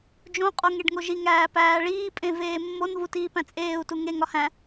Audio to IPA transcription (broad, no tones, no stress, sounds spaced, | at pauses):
d͡ʒ õ qʼ o ŋ e ɖ ŋ o ʒ i ŋ æː p æː ɭ iː pʼ ẽ v eː mː o n v u t iː p æ̃ t͡sʼ eː u̯ t u ŋ e ŋ ɒ h æ̃